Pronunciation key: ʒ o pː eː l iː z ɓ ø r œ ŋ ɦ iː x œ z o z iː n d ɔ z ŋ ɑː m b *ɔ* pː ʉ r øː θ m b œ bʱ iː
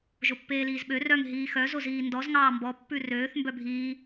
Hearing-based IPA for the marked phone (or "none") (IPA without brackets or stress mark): ɔ